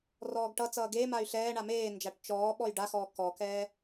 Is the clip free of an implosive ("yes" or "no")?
no